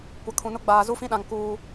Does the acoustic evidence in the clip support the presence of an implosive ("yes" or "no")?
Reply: yes